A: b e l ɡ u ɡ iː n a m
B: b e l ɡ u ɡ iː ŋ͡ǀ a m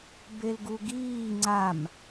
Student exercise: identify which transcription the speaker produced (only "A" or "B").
B